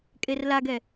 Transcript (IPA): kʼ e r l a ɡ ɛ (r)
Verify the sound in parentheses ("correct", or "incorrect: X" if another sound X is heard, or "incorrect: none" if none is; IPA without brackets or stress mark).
incorrect: none